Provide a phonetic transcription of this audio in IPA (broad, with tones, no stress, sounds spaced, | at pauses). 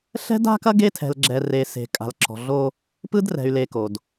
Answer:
ɬ ɛ̤˦ d a̤˦ k ɐ˦ ɡ e˦ tʰ ɛ̤˨ l ɡ͡ǁ ɛ˨ r e˨ s e̤˨ kʼ a̤˨ l ǁ ɔ̤˨ ɮ o˦ | p ɯ˦ d r ɛ̤˨ y̯ l e˨ k o˨ d